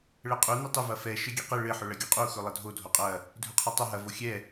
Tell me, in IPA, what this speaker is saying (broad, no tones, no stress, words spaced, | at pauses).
ɭɛqʼu nutˤɪ vɐfɛ ʃɘɡʲeqɘ ɭɘ ħɵɭɐɡʲuqʼu xɵlˠɐdʱo dʱoqʼɐ | dʱɵqʰɐtˤɵ ɦɐ voxʲɛ